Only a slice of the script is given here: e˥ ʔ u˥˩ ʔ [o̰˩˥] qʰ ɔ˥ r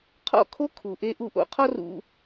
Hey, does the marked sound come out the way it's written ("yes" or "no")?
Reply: yes